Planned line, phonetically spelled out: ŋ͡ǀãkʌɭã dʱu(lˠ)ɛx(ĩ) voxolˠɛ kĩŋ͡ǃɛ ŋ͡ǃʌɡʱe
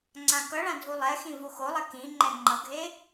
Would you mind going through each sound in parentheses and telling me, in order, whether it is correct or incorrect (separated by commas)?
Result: correct, correct